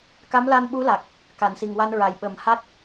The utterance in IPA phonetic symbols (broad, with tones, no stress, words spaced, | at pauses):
ka˧˥mla˧nɓu˧˥la˨˩k̚ | ka˨˩˨nsi˨˩ŋwa˧nɹa˨˩j ɓə˨˩mha˦˥t̚